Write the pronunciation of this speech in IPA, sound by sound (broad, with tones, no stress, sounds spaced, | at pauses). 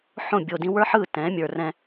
ħ õ˦˨ bʲ o˨ d ĩ˦ w ə˞˦ ħ ɯ˦˨ t ɛ̃˨˦ mʲ ə˞˨ r ɛ̃˦